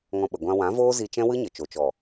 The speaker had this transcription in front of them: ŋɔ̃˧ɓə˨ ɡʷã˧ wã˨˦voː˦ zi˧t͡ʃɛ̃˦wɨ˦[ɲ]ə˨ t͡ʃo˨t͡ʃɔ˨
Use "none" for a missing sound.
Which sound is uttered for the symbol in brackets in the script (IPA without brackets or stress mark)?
ɲ